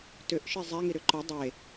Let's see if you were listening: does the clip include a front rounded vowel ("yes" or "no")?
yes